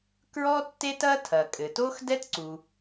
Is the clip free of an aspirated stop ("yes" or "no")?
no